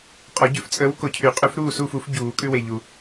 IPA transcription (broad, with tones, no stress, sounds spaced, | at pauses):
qʼ ɔ˨˩˦ ɟ ʉ˨˥ f t͡sʼ əː˨˥ w k o˨ cʰ y˨˩˦ qʼ ʉ˨˥ f ɾ uː˦˨ s uː˦˨ f u˨˩˦ f ɟ uː˨˩˦ kʼ ʉ˦ w e˨ ʎ u˨